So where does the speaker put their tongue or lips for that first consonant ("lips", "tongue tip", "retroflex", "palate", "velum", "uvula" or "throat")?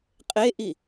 uvula